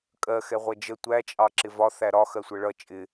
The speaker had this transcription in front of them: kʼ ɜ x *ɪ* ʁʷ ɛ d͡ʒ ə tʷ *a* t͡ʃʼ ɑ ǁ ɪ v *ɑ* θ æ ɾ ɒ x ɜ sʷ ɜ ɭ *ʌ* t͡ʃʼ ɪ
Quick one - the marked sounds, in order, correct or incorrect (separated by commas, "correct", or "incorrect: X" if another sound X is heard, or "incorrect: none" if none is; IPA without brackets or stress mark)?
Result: incorrect: ɛ, incorrect: æ, incorrect: ɒ, correct